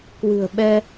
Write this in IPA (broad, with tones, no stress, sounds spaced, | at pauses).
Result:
k w ɨ̤˨˩ ə̯ ɓ ɛ˧